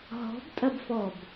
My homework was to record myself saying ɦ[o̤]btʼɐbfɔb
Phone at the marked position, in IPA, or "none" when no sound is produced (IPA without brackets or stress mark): ɔ̤